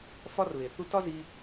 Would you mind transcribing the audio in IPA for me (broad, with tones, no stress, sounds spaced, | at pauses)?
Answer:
f ɒ˦ r β e˨ θ u˦ t ɒ˦ z i˧